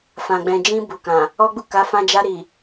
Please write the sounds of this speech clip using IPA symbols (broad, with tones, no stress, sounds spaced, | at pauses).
f ã˨ ɡ͡b ɛ̃˨ d͡ʒ ĩ˧ b u˨ k ã˨ | ɔ˦ ɡ͡b u˦˨ k a˨˦ f ã˧ d͡ʒ a˧ ɾ i˨